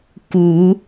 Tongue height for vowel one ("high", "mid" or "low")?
high